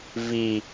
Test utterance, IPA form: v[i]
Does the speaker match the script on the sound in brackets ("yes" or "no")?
yes